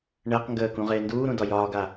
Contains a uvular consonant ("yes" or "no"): yes